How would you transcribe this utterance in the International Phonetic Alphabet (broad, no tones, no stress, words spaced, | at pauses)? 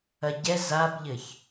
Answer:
ɐɟɛ zabʎɘç